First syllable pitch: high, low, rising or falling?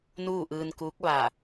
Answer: falling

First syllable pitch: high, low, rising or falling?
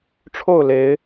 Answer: falling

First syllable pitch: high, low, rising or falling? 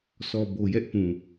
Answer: low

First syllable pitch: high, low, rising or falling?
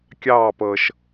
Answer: falling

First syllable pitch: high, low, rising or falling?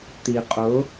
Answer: low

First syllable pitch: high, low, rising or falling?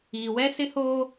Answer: low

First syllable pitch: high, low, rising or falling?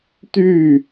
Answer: falling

